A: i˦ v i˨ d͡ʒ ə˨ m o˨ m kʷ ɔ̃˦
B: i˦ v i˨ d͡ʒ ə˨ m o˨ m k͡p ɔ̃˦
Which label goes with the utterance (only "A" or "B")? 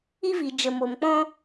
B